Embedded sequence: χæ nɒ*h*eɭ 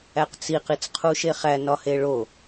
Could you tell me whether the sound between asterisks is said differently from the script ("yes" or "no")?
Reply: no